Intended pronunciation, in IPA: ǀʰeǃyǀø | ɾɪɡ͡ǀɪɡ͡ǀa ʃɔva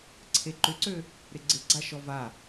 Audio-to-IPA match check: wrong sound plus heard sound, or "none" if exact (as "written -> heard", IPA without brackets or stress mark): y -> ʏ